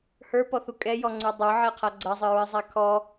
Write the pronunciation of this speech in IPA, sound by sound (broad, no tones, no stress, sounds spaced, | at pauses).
h ə˞ p ɔ θ u kʼ ɛ j ɔ ŋ͡ǀ ə˞ dˤ ɤ ʕ ɛ qʰ a ɡ͡ǀ ɐ zˤ ɨ ɹ ɨ zˤ a kʰ ɔ